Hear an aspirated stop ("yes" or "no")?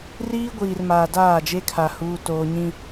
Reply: yes